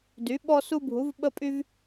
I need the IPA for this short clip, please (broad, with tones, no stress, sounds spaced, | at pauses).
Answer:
d y˩˥ ɓ ɔ˦ s u˦ bʱ u˩˥ v ɓ ə˦ pʼ y˦ v